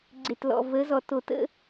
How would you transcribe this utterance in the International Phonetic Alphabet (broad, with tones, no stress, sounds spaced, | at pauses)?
ɡ͡ǀ e˨ t l ɔ̰˨ v ə˨˦ z ɔ˨ t o˨ t ə̰˦